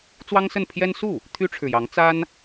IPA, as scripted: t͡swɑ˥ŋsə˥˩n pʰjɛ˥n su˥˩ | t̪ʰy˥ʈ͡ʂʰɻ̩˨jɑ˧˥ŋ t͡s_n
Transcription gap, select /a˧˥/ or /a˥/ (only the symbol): a˥